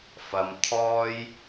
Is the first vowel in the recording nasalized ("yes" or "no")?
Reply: no